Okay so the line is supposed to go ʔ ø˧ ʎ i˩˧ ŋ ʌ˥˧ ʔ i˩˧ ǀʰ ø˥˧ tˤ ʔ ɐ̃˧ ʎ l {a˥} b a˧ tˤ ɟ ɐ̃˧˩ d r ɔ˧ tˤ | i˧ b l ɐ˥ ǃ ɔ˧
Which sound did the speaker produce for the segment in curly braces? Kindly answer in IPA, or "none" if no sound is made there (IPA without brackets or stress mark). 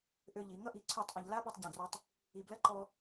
a˥